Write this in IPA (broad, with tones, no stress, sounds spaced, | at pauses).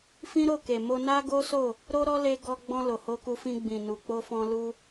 f ĩ˦ ɾ o˦˨ k e˨ m o˧ n a˦ ɡ o˦ s o˦˨ | ɾ o˦ ɾ ɔ˦ l e˧ ɡ ɔ˧ ɡ͡b ɔ̃˧ l o˨ h o˧ k u˧ f ĩ˧ ɡ͡b ĩ˨ n u˨ k͡p o˧ f ɔ̃˧ l u˧